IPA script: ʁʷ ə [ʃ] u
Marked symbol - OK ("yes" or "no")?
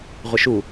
yes